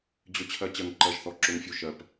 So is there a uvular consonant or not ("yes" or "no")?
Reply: no